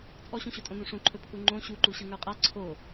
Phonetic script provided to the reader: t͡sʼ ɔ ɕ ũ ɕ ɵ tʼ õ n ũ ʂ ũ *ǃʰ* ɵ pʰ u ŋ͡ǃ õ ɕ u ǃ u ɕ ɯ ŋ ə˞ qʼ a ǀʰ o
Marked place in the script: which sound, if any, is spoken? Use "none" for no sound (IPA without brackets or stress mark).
ǃʰ